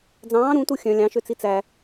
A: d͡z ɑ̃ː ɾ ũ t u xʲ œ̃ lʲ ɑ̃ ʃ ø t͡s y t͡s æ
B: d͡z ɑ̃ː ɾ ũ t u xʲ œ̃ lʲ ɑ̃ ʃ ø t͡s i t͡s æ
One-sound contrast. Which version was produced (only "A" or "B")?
B